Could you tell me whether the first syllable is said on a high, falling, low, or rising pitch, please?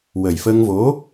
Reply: low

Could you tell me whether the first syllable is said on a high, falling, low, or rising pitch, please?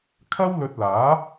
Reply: high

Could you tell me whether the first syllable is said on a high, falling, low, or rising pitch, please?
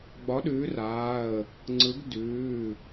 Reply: rising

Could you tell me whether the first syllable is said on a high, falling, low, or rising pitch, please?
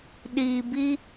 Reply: low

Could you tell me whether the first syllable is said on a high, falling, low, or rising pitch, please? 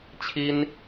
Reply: high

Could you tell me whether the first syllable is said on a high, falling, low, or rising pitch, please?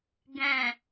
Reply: low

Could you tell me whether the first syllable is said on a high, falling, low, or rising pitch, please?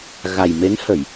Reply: low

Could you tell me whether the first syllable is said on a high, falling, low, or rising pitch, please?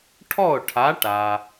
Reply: falling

